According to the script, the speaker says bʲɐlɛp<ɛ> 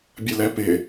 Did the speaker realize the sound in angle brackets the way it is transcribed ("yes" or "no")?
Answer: no